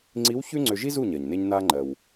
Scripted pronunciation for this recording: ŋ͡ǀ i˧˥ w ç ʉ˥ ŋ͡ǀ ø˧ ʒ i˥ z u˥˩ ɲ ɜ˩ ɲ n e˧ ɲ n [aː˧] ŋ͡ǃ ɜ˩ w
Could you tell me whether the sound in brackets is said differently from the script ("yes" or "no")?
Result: no